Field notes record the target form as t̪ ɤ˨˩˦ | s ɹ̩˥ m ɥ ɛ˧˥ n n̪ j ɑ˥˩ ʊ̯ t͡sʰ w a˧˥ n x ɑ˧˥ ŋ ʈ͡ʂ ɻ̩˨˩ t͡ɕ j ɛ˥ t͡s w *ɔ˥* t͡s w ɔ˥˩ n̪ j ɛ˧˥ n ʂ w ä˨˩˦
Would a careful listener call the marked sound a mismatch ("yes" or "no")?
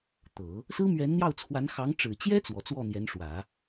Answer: yes